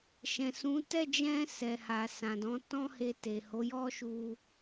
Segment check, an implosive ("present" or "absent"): absent